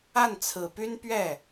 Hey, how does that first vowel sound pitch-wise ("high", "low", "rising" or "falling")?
falling